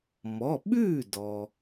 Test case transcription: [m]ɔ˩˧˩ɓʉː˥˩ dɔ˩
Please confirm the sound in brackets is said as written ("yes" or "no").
yes